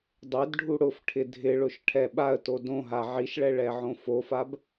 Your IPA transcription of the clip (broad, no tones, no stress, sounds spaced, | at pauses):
dˤ e d ɖʱ u ɽ ʊ f ʈʰ ɪ dʱ ɪ ɭ ʊ ʃ ʈʰ ɛ ɓ a ə̯ t o d õ ɦ a ʕ i ʃ ɭ ɛ ɭ ɛ ʕ õ f o f a b